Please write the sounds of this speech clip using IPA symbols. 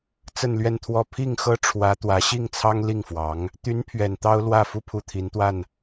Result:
t͡s ə˥˧ n l ɥ ɛ˥˧ n t̪ʰ w ɔ˥˧ pʰ i˥˩ ŋ x ɤ˥ ʈ͡ʂʰ w ä˧˥ t̪ w ä˧˥ ɕ i˥˩ ŋ t͡sʰ ɑ˥ ŋ l i˥˩ ŋ f w ɑ˧˥ ŋ | t̪ y˧˥ n pʰ ɥ ɛ˨˩ n t̪ ɑ˥ ʊ̯ l w ä˥˩ f u˥ pʰ u˥˩ t̪ʰ i˧˥ n t̪ w a˥˩ n

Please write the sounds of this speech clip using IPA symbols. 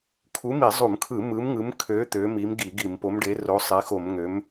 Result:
kʰ u˨˥ m i˧˩˧ zˤ u˧˩˧ m kʰ ɯ˧˩˧ m ɯ˨˥ m ŋ ɯ˨˥ m kʰ ø˨˥ t̪ ø˨˥ m i˨˥ m ɡ i˧˩˧ ɡ i˧˩˧ m p o˨˥ m ɖ e˨˥ r o˨˥ sˤ e˨˥ x o˧˩˧ m ŋ ø˨˥ m

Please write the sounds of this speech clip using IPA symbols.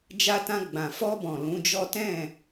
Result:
d͡ʒ a˧ t ã˧ ɡ͡b ã˨ f ɔ˧ b ɔ̃˨ l ũ˨˦ d͡ʒ ɔ˦ t ɛ̃˦˨

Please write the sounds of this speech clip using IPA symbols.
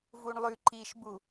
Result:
v u ɳ lˠ ʉ ǃ i ʃ b u

